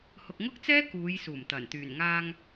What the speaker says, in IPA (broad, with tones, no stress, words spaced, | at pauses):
hʊ˨k̚ŋʊ˥k̚t͡sɛː˥ kuː˨˧jsuː˨˩mt̪ɐ˨˩n t̪yː˨˩nŋaː˧ŋ